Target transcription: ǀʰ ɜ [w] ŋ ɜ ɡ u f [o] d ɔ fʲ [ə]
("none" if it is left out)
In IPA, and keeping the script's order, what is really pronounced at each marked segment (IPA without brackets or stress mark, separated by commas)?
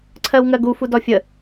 w, u, ə